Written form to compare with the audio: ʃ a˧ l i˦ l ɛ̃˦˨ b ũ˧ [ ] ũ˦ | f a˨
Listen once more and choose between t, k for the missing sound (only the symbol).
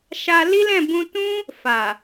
t